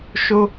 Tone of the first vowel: high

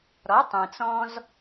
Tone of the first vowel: rising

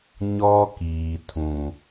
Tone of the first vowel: high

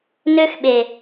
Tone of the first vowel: high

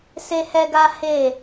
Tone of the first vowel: high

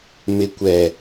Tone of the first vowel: low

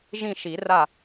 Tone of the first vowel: falling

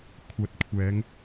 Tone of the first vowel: rising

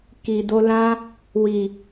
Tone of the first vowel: low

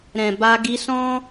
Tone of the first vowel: low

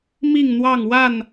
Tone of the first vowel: falling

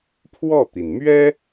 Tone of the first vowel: falling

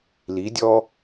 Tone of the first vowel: rising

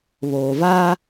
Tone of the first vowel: low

